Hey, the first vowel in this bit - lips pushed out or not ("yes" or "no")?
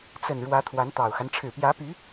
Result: no